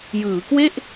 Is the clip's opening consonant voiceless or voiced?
voiced